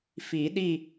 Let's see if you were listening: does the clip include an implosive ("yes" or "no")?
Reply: yes